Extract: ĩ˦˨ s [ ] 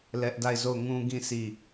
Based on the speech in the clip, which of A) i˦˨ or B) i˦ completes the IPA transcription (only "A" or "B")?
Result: A